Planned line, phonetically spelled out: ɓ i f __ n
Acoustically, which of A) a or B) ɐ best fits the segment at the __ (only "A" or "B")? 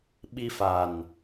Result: A